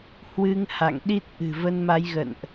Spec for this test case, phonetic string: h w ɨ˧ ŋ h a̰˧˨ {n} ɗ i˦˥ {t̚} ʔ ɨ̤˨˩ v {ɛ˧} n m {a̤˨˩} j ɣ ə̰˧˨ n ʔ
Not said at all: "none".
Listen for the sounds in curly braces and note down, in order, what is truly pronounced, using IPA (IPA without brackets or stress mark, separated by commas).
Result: ŋ, t̚, ə˧, a˨˦